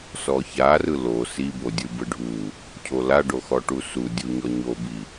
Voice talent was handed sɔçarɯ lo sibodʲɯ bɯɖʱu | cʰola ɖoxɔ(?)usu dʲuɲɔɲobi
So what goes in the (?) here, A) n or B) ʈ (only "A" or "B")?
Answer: B